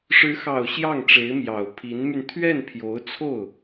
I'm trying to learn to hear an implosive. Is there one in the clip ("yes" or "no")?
no